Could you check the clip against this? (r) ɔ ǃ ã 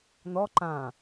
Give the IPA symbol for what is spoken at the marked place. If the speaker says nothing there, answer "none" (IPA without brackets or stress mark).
n